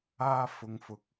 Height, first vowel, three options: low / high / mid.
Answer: low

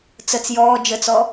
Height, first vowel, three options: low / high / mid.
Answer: mid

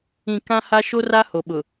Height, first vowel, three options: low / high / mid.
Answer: high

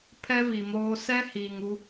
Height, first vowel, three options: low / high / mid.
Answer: mid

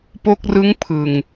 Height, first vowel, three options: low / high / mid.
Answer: mid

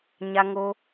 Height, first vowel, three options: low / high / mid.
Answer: low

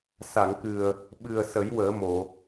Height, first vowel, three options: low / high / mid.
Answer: low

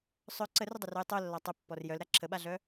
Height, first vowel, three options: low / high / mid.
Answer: mid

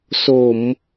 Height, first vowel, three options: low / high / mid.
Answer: mid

